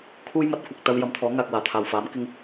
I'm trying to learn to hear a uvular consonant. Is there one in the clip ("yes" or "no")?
no